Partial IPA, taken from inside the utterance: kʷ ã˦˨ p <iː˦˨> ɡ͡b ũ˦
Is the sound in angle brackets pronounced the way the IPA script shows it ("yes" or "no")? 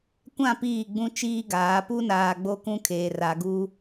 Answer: yes